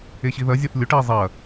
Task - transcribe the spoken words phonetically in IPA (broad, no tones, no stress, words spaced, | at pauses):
eɕiðɐzʲɐθ lʲoʈe zˤɐ